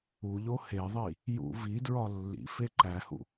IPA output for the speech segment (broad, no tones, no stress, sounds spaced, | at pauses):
u ʎ o h e ðˤ i | j ṵ v i d ɹ ɒ lː ḭ f e ǃ æ h ṵ